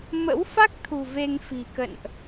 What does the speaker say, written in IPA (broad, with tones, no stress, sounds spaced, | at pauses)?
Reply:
m ə̰˧˥ w f a˦˥ k̚ t̪ʰ ṳ˨˩ v e˧ ŋ f i̤˨˩ k ə̰˧˨ n ʔ